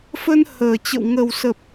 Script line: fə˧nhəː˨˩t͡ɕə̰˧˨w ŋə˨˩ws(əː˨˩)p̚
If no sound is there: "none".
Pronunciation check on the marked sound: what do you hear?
ə˨˩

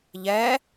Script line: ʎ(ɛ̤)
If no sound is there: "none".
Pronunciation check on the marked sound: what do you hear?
ɛ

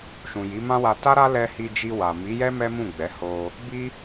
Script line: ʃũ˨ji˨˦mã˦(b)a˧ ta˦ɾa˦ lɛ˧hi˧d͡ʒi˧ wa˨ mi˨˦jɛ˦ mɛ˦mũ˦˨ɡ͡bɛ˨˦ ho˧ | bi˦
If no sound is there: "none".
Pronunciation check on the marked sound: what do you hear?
w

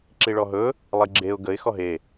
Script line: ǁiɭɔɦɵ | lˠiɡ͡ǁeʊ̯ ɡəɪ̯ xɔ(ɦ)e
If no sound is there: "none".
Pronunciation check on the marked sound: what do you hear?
ɦ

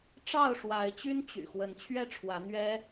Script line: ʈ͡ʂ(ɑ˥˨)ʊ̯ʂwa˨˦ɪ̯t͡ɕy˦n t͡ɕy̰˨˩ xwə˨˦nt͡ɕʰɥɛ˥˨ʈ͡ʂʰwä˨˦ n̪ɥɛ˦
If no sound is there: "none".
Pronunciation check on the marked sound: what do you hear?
ɑ˥˨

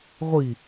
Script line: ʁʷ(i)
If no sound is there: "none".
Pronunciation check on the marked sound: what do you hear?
i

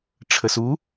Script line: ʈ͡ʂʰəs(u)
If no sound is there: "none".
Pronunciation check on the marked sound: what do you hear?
u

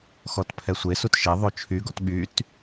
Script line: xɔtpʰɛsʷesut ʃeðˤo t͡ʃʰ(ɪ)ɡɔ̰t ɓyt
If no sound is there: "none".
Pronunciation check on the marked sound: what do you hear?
y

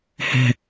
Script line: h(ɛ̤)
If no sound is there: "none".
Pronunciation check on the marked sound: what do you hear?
ɛ̤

